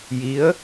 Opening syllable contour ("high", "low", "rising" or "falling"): rising